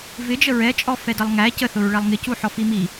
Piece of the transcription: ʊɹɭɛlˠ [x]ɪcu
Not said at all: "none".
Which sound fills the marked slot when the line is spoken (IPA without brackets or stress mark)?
ŋ